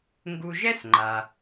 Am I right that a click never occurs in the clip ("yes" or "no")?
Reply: no